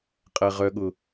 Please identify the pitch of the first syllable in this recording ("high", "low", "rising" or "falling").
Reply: low